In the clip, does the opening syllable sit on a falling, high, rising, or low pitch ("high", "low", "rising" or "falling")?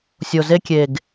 low